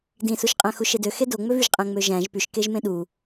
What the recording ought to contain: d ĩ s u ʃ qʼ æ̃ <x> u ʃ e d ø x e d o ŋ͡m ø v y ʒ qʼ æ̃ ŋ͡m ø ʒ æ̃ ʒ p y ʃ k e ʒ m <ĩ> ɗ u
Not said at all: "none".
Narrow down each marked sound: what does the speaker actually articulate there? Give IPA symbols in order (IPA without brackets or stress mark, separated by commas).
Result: x, ẽ